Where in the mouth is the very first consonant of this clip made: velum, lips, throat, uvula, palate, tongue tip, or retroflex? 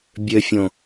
lips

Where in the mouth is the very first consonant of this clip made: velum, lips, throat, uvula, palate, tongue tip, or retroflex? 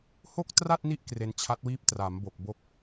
throat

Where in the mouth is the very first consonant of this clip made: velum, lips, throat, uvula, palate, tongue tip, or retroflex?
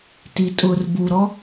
tongue tip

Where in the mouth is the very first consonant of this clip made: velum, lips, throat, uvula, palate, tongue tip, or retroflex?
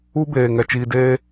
lips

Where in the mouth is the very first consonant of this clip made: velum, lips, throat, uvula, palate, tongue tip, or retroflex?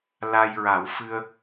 tongue tip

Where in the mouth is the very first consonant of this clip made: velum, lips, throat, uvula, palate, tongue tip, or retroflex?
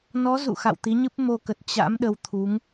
tongue tip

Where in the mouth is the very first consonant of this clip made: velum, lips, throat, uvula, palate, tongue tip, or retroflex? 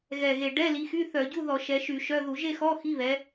velum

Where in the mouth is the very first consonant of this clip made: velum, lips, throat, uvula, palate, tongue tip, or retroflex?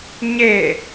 palate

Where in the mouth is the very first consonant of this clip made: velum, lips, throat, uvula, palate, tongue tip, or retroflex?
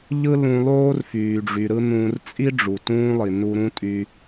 palate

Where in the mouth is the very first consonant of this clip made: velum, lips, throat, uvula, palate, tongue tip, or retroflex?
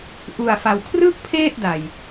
throat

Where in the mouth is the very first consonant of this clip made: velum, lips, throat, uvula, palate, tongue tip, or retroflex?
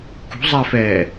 velum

